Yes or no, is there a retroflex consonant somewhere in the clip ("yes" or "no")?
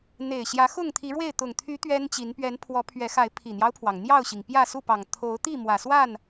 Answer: yes